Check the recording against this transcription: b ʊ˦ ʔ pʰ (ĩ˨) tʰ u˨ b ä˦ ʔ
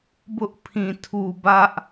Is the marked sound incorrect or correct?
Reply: correct